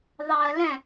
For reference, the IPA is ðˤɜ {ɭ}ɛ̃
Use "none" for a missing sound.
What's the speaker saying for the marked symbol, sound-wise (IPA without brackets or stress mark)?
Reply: l